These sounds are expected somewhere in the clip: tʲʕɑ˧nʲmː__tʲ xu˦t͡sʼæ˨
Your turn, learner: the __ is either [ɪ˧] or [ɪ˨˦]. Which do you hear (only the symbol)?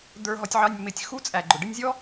ɪ˨˦